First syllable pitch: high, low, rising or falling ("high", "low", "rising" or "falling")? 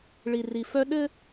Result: low